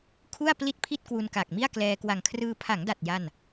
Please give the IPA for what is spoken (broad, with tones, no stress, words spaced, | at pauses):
kʰu˥˩a̯ pli˥˩t̚pʰi˥˩t̚ kwu˧nka˨˩k̚mi˥˩a̯klɛː˧ kwa˨˩ŋkʰrɯː˧ pʰa˩˦ŋda˨˩t̚ ja˥˩n